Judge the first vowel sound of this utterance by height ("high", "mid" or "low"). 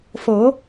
mid